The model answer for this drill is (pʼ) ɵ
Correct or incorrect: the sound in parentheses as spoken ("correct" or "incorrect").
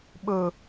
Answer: incorrect